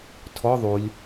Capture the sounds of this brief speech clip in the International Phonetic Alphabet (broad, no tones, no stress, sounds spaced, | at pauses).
tʰ ɔ ðˤ u lʲ